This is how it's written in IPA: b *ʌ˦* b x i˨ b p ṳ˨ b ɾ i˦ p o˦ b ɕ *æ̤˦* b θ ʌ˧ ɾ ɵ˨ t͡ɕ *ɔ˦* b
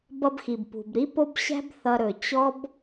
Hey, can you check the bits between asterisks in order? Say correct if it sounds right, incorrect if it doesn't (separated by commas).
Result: incorrect, correct, correct